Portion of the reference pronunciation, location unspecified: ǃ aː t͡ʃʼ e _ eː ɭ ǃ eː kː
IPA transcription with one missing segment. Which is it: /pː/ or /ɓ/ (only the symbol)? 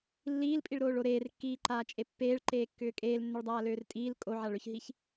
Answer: pː